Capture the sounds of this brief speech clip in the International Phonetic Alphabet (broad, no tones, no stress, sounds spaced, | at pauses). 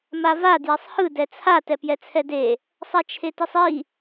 m a v a d j ɛ sˤ h ɯ d ɛ t͡sʰ a t ɛ p j ɛ t͡sʰ ɛ d e | sˤ a t͡ʃʰ e t i sˤ i